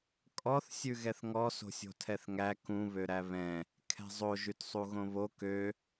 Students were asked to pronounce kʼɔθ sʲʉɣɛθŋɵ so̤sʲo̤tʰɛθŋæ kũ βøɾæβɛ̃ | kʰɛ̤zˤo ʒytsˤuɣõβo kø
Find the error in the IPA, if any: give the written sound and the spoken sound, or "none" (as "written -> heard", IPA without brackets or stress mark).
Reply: ɵ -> ɔ